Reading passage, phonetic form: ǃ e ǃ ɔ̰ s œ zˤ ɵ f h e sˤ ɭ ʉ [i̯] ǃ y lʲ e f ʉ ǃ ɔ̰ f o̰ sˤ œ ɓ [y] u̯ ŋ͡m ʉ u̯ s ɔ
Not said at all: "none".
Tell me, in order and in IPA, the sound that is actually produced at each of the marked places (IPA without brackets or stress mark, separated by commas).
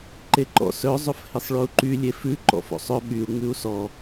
u̯, y